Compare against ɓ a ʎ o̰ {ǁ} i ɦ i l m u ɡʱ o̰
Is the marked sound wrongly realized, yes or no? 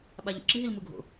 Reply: no